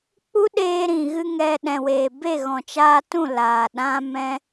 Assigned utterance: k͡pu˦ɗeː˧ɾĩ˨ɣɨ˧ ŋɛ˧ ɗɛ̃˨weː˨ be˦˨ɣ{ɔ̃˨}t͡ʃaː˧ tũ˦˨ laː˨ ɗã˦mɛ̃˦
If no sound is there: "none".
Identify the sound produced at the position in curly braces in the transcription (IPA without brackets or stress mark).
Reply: ɔ̃˨